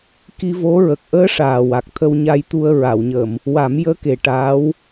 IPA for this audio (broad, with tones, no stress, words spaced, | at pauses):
ki˧vo˧˥ ɹə˨˩k̚ʔəː˧˥ʂaː˨˩ wa˨˩k̚t̪ʰə˧wɲa˧jt̪u˧ə̯ ɹa˨˩˨wɲəː˨˩˨m | wa˨˩˦m jəː˧˥ke˨˩ ʈaː˧˥w